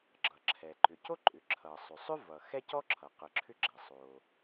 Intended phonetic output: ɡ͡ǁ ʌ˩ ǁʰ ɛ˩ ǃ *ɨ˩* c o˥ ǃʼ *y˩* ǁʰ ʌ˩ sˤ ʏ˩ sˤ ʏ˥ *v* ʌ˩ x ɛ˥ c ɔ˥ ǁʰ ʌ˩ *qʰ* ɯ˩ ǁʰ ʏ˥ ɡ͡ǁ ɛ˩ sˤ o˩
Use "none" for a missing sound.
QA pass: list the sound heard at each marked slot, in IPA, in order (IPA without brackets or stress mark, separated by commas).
ʏ˩, ʏ˩, v, q